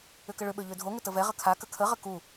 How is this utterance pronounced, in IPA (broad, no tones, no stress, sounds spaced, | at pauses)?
ʏ k ə ɭ ʏ ɓ ø ʎ ø dʱ o ŋ ʏ t ə v ɛ ʁ ə kʰ a k ə kʰ ə ʁ ə k u